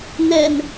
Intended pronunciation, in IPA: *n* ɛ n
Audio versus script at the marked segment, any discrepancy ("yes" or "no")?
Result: no